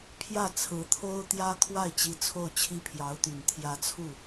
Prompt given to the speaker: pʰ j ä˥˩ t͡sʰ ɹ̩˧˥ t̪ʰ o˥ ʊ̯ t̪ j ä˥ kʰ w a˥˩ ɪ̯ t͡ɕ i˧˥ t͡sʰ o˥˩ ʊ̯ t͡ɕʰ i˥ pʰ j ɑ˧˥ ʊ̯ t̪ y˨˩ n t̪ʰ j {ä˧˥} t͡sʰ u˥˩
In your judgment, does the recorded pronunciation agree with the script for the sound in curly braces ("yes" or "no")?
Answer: yes